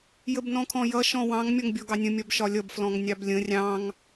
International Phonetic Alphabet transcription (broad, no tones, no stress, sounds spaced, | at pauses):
j ə b n ɔ̃ kʰ ɔ̃ j ʌ ʃ ɔ̃ w ɑ̃ ŋ mʲ ɔ ŋ bʲ ɔ ɡ ɑ nʲ ə̃ mʲ ɒ b ʃ ɒ lʲ ʌ b f l ɔ̃ ŋ nʲ ɑ b lʲ ə̃ rʲ ɑ̃ ŋ